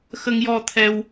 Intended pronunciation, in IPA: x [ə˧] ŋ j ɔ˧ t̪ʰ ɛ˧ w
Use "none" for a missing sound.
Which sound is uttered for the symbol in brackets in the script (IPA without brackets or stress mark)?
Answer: ə˧